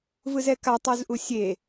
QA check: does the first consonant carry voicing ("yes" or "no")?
yes